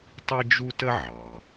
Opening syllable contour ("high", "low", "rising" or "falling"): high